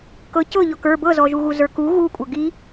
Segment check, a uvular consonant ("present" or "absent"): absent